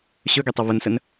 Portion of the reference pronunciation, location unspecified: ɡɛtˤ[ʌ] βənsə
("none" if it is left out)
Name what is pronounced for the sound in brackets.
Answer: ʌ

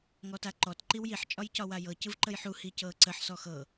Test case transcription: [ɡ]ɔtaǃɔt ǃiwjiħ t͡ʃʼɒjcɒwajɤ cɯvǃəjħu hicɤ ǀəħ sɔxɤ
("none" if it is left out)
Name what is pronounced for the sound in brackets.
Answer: ŋ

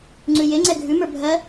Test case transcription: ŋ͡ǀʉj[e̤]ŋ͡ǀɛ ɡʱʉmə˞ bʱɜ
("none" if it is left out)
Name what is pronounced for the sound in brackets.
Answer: e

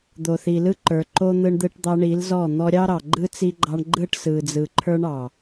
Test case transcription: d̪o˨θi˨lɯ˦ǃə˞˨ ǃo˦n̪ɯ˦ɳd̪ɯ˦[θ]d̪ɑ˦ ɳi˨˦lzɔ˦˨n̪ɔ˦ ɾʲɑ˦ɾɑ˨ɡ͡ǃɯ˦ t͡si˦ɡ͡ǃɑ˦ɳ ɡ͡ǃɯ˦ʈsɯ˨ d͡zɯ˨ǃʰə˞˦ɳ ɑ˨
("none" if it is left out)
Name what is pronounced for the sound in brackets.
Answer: ʈ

